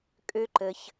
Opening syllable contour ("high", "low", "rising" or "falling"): high